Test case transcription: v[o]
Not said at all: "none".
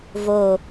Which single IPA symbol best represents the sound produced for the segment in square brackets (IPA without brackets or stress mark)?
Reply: o